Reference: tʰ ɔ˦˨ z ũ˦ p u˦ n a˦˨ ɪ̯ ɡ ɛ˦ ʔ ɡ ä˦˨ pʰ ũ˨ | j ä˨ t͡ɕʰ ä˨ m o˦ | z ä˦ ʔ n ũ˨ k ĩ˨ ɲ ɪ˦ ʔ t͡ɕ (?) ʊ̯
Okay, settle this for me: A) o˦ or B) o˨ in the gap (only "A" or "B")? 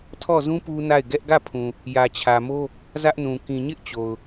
B